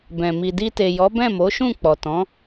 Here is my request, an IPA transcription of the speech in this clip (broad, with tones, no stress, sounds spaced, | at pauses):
b ɛ̃˨ m i˨ d i˧ t e˨ j ɔ˨˦ b ɛ̃˦˨ m o˨˦ ʃ ũ˦˨ k͡p ɔ˨ t ɔ̃˨˦